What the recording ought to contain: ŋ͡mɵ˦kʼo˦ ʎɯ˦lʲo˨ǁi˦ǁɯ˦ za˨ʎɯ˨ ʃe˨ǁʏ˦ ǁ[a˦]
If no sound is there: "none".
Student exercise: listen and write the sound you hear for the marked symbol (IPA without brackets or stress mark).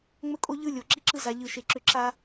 a˦